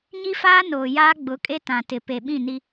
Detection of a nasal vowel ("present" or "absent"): present